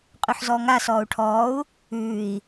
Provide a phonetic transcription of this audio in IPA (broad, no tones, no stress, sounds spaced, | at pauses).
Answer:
qʼ ʉ ħ z ɔː ŋ a s ɔː u̯ ʈʰ ɔː u̯ | ʉː i̯